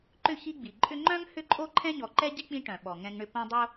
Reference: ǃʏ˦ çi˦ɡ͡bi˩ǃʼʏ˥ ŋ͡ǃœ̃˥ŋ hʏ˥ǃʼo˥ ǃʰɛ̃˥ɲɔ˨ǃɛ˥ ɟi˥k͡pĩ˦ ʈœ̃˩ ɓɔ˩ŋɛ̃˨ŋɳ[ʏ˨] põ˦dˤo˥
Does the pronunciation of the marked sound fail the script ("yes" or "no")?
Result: no